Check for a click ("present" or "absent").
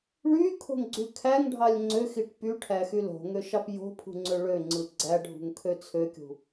present